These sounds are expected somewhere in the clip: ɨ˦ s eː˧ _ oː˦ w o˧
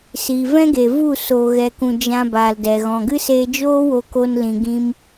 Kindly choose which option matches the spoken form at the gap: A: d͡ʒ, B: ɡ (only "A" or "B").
A